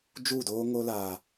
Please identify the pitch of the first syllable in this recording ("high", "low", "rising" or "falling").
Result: falling